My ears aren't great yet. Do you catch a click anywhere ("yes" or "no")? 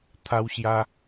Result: no